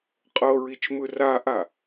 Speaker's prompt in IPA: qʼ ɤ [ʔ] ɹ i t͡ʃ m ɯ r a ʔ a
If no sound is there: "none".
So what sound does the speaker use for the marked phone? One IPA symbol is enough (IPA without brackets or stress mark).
none